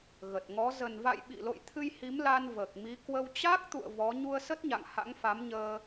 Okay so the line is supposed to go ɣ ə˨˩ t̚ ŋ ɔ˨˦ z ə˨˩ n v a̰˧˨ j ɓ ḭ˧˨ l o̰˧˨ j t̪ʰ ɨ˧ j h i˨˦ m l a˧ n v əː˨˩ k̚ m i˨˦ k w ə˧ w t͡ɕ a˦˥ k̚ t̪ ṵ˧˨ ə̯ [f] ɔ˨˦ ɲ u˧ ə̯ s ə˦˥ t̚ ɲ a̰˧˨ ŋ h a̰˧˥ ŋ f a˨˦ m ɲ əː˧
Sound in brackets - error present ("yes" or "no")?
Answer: yes